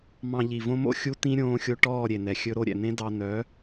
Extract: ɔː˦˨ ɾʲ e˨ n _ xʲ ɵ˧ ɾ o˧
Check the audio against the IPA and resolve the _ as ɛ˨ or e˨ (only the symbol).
ɛ˨